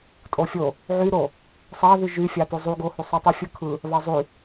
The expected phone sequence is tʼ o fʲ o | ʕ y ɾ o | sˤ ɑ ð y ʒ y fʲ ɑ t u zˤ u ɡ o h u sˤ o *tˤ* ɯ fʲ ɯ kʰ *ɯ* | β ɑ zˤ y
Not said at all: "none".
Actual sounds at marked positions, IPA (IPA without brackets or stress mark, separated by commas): tˤ, ɯ